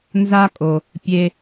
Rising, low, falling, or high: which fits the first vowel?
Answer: high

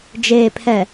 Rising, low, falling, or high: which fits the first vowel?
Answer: low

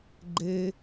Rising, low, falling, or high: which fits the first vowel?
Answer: high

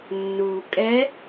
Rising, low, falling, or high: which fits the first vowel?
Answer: low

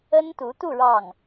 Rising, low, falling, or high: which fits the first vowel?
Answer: high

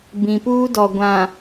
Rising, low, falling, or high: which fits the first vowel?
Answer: low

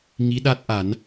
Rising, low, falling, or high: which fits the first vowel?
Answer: rising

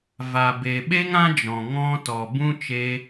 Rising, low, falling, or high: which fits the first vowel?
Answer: low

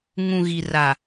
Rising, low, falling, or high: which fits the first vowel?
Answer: low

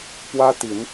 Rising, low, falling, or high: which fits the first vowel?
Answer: high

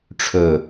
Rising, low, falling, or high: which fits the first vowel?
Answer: low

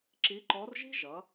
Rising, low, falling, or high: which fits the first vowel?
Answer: rising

